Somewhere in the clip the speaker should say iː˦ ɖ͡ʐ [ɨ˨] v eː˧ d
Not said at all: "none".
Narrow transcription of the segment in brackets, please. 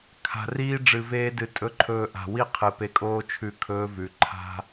ɨ˨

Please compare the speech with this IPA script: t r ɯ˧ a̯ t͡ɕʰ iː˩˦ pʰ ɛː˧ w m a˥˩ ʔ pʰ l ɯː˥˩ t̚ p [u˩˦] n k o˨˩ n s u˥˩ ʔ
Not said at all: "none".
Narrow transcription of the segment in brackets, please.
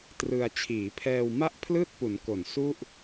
u˩˦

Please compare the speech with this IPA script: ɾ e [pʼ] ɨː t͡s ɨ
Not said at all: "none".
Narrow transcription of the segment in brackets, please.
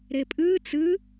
pʼ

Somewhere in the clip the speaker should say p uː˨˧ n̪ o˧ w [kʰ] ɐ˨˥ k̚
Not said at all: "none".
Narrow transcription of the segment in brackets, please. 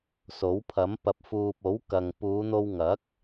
ŋ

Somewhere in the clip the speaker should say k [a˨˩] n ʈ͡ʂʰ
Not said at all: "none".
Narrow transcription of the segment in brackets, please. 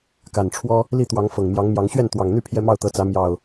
a˨˩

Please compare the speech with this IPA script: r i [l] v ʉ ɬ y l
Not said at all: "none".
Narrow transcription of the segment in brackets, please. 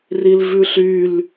l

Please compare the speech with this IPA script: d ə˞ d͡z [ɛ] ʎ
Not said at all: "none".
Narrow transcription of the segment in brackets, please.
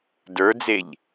e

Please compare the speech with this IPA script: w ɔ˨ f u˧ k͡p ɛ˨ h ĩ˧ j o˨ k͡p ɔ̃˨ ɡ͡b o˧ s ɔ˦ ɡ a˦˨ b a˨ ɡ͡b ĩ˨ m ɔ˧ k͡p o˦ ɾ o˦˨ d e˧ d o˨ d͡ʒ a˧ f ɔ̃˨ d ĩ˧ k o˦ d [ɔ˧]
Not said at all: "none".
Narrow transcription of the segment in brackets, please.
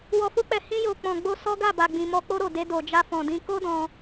ɔ̃˧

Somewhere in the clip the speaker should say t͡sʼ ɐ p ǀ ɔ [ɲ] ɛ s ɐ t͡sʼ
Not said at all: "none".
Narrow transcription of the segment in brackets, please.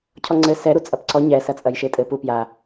ɲ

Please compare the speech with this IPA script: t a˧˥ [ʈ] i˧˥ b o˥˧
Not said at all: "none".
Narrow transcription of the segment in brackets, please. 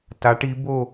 ʈ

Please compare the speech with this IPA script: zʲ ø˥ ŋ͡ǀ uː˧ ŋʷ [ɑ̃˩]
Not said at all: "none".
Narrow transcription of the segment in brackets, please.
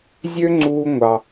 ɑ˩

